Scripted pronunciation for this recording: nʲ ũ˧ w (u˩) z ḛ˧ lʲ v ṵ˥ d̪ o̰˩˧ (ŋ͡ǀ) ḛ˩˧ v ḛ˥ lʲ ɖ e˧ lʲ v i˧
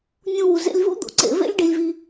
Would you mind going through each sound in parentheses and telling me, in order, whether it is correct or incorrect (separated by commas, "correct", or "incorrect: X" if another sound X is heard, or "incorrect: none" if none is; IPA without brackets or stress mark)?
correct, incorrect: ǀ